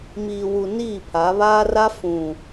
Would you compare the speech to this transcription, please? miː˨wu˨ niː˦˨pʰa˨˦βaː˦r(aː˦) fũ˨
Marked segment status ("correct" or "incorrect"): incorrect